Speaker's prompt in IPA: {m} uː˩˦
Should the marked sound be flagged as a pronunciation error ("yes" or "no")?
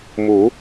no